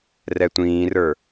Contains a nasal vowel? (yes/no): yes